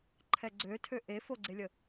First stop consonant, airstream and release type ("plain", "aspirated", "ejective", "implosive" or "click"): click